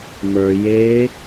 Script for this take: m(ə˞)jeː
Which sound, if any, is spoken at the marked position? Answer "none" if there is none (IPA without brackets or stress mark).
ə˞